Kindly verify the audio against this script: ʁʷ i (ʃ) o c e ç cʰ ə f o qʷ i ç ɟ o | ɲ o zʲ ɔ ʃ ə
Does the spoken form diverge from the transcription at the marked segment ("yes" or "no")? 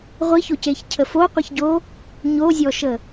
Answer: yes